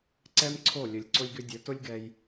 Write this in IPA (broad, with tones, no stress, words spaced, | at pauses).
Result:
ǀɛ˦mǀʰo˦˨ lʲɵ˨lʲǀʊ˧lʲɡʏ˧dʲɵ˨˦ tʊ˦lʲɡɛ˧j